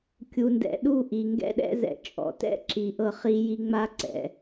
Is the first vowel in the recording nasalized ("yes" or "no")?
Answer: no